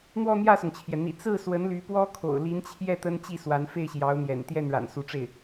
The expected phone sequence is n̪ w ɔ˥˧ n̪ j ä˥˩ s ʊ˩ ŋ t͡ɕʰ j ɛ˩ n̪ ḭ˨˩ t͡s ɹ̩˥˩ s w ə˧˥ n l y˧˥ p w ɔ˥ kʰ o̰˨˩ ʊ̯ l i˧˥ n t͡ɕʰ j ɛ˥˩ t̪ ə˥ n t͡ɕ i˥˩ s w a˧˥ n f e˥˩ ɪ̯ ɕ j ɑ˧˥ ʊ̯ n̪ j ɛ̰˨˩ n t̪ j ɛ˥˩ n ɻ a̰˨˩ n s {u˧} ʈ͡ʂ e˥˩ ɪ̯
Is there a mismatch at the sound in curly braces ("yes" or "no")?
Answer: yes